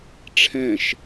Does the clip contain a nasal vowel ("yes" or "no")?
yes